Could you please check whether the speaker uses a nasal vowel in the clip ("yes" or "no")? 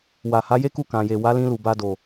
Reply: yes